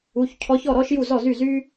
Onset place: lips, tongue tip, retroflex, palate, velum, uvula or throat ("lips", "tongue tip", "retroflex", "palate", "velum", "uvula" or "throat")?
palate